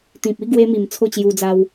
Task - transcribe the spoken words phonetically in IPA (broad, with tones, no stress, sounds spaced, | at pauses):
t̪ ĩ˨ p̚ i˥˧ ɡ w e˧ m i˨˩ m t͡sʰ o˥˧ t͡ɕ j u˧ d͡z a˧ w